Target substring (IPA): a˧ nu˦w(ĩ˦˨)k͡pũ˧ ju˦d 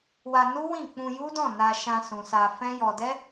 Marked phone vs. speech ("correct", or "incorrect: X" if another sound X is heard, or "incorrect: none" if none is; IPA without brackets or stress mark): correct